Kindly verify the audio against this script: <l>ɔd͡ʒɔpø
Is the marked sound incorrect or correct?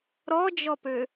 incorrect